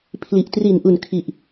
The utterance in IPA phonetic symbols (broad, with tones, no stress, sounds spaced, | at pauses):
pʰ l i˨˩ ʔ t r i˨˩ n ʔ u˨˩ n kʰ i˨˩ ʔ